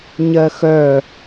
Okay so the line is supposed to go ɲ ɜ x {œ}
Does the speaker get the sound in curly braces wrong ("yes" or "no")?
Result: no